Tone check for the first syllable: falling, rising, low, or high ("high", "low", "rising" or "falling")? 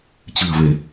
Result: low